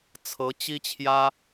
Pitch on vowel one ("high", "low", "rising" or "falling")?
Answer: rising